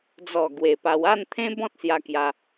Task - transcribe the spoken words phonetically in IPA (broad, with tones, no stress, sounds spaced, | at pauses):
d͡z ɔ˨˩ ɡ w e˨˩ p a˧ w a˥˧ n t̪ʰ ẽ˦ b ɔ̃˦ t̚ s j a˧ k j a˧